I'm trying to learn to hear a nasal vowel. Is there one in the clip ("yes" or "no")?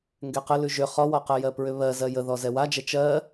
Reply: no